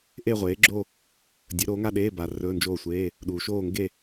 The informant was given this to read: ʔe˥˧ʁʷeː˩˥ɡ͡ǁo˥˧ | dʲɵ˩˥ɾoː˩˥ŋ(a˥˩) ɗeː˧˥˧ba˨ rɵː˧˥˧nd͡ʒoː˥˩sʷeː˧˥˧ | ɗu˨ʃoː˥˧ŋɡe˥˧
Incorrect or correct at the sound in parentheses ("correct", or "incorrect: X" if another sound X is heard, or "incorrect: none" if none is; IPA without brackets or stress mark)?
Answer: incorrect: a˥˧